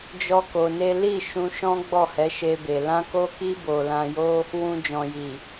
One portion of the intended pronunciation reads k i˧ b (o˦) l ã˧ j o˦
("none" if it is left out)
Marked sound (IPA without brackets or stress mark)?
o˨